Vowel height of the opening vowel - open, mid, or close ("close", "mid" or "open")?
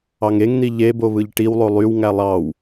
open